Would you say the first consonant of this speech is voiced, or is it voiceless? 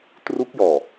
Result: voiceless